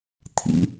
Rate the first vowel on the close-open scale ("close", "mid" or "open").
close